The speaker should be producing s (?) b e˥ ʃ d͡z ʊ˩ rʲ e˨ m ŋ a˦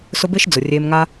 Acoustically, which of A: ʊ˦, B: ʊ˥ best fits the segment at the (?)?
A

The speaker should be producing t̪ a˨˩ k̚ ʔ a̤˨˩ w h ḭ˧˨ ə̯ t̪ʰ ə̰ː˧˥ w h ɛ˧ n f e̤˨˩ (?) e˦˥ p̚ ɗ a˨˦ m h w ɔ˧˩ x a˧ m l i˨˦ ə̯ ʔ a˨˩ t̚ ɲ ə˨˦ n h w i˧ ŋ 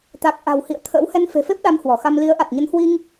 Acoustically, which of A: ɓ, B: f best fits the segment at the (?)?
B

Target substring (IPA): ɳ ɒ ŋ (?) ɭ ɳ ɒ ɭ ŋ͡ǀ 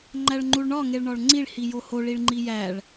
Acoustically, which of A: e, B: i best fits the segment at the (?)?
A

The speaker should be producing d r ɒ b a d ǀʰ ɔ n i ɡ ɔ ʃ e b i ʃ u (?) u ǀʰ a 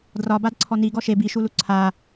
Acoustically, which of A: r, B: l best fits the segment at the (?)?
B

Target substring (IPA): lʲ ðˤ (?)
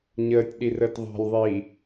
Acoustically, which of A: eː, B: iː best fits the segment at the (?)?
B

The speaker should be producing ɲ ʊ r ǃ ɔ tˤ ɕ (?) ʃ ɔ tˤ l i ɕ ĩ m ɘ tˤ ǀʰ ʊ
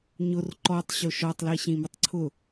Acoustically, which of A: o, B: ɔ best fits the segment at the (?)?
A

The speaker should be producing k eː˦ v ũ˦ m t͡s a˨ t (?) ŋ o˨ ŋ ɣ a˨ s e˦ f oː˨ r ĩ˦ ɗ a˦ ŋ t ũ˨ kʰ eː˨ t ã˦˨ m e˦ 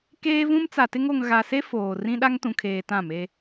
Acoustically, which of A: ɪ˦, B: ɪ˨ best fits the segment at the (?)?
A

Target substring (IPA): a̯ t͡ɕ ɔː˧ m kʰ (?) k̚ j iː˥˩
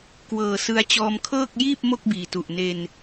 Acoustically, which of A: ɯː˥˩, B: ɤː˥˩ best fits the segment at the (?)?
B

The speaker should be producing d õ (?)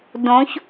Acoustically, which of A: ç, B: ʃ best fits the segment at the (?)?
A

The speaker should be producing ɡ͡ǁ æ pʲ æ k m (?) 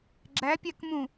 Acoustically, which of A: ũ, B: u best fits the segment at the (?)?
A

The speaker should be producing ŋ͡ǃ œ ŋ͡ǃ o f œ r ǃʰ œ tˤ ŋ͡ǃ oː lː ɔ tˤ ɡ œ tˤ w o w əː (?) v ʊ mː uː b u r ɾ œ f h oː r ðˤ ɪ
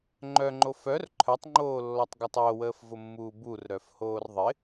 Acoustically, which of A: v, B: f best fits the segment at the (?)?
B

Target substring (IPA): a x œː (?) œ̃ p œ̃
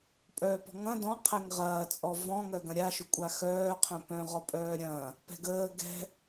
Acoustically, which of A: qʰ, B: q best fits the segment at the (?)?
A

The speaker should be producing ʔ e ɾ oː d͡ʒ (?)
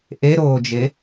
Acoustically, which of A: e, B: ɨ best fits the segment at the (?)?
A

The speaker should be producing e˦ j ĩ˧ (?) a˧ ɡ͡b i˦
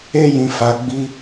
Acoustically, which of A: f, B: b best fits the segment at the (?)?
A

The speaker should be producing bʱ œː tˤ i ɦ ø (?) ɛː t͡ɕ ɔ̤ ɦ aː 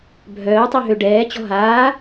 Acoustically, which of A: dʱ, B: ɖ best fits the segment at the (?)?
B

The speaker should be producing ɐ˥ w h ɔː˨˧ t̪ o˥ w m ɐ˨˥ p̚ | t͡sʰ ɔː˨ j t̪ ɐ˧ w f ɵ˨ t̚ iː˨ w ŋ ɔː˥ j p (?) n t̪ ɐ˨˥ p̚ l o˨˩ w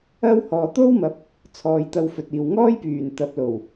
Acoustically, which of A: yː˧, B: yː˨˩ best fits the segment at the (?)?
B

